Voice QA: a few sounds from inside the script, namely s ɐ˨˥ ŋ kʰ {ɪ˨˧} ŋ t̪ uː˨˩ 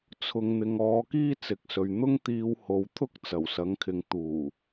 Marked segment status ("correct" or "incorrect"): correct